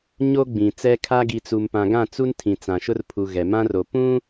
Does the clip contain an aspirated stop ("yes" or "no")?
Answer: yes